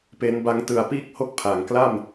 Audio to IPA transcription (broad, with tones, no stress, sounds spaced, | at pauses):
p e˦˥ n b a˦˥ ŋ t ɯ˧ a̯ p iː˥˩ k̚ h o˥˩ k̚ pʰ a˩˦ ŋ k l a˥˩ m